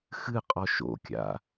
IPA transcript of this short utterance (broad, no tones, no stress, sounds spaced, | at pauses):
x ɨ qʼ ɔ ʃ o̰ kʲ a̰